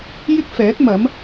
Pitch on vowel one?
high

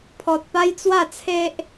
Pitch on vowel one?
low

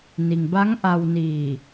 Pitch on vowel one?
low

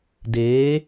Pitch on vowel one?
rising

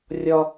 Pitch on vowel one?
high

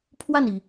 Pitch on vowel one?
falling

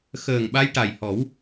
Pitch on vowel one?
low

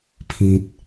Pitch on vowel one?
low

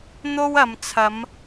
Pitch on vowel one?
high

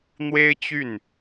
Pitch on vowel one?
high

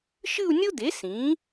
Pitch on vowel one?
falling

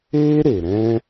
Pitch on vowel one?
high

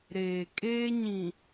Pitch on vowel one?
low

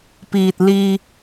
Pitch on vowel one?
low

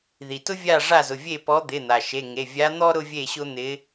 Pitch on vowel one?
low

